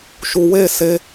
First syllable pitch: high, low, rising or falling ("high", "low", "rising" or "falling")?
low